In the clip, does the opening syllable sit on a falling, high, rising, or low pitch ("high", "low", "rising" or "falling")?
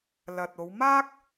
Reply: low